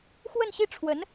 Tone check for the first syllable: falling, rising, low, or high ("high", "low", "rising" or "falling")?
falling